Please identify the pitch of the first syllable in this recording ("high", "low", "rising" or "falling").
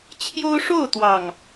high